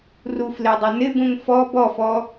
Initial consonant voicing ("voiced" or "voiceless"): voiced